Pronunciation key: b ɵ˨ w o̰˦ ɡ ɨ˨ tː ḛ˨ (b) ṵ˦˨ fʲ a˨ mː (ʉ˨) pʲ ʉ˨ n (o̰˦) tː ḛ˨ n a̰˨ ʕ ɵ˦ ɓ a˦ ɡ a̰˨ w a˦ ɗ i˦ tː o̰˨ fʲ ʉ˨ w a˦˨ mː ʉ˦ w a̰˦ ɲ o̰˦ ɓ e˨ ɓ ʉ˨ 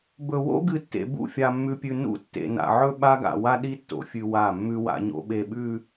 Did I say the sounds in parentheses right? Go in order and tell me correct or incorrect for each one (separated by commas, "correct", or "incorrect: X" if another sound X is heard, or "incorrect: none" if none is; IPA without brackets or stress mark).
correct, correct, incorrect: ṵ˦